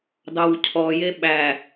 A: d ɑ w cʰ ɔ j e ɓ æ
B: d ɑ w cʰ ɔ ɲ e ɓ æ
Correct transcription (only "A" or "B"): A